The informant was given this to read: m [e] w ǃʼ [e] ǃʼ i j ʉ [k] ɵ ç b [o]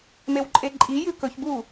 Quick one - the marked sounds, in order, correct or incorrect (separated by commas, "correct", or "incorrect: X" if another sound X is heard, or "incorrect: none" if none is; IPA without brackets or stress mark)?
correct, correct, correct, incorrect: u